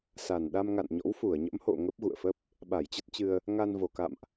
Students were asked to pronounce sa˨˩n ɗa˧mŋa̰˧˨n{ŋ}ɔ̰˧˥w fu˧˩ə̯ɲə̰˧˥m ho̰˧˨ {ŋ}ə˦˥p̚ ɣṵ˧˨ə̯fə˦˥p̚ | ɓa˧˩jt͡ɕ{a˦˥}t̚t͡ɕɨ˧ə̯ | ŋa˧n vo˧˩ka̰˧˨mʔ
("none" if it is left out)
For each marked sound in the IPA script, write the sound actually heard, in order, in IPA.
ɲ, ŋ, ə˦˥

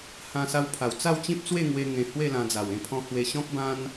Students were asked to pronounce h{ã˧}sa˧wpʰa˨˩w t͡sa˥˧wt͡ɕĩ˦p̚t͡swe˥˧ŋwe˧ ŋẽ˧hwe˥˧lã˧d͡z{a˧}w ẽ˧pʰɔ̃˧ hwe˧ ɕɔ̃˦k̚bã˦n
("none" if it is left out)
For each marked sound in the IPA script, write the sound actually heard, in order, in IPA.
ã˧, a˨˩

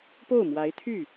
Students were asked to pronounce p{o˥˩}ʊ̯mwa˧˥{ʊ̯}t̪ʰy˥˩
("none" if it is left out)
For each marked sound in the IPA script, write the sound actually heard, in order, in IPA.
o˥˩, ɪ̯

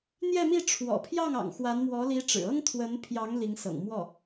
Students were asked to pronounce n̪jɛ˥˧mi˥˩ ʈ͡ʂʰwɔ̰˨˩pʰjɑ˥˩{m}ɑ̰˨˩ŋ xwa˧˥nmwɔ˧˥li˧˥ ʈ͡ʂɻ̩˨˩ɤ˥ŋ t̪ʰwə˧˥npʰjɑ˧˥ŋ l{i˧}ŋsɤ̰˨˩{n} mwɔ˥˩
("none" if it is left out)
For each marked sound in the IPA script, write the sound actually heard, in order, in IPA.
ŋ, i˧˥, ŋ

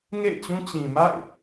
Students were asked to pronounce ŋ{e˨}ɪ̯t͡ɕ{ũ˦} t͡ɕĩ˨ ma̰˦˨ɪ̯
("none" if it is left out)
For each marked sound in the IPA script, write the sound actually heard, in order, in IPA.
ḛ˦˨, ũ˦

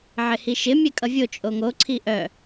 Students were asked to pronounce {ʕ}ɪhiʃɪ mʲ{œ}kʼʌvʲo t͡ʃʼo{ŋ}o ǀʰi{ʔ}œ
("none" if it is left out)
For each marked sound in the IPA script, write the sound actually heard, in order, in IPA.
ʕ, ɛ, ŋ, ʔ

